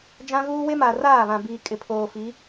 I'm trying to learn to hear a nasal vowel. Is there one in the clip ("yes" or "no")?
yes